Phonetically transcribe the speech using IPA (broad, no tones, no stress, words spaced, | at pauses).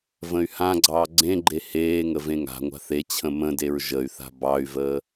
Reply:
və̃y̯hãɡ͡ǀɑː ɡ͡ǀẽɡ͡ǃe heːŋə vẽŋa̤ŋʷa̤ θet͡ɕʰə̃ mə̃deɹ ʒəy̯θa̤ bɑy̯vəː